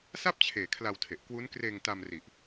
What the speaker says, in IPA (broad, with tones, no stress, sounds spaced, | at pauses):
s a˥˩ p̚ t͡ɕʰ eː˨˩ kʰ l a˧ w tʰ e˨˩ ʔ k w u˦˥ n k r eː˧ ŋ t a˧ m r i˨˩ ʔ